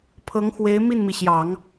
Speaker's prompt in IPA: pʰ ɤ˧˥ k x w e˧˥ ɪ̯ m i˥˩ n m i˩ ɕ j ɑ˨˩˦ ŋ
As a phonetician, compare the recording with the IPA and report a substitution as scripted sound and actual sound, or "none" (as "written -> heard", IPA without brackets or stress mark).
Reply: k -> ŋ